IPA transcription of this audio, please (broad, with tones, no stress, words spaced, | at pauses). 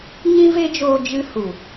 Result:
ɲĩ˦ve˦d͡ʒoː˧ d͡ʒɨ˦ hu˨